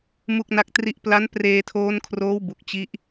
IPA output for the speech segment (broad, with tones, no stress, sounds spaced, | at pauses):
m u˥˩ k̚ n a˥˩ k̚ t r i˥˩ ʔ p l a˦˥ n p r eː˧ tʰ oː˦˥ n kʰ r oː˦˥ w b u˨˩ k̚ t͡ɕ i˦˥ ʔ